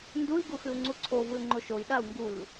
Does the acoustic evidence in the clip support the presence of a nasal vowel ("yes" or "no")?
no